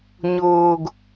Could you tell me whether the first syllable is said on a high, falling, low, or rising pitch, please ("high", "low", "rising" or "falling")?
low